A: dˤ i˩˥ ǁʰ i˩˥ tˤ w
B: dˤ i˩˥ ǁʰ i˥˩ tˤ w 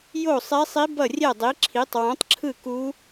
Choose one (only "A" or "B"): A